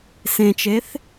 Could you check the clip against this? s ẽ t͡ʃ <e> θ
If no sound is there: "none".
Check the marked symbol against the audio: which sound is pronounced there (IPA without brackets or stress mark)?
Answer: e